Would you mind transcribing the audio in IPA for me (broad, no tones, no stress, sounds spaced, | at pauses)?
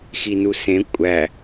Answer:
x i n u s ẽ kʷʼ æ